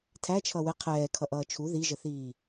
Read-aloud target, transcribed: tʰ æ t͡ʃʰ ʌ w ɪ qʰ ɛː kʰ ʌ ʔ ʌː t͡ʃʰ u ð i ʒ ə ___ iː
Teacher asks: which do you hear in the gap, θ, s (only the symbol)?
θ